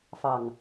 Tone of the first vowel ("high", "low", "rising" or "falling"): low